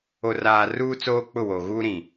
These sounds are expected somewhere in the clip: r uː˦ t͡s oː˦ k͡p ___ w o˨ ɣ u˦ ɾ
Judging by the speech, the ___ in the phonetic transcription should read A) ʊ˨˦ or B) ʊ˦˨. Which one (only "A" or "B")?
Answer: B